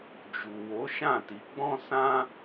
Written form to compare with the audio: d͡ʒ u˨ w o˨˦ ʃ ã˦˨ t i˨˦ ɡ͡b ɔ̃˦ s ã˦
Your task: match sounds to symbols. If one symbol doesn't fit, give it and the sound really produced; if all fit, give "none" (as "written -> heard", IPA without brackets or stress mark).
none